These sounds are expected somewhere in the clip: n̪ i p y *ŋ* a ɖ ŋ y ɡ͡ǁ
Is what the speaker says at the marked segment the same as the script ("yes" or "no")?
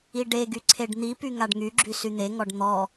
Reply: yes